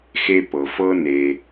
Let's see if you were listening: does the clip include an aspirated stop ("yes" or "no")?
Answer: no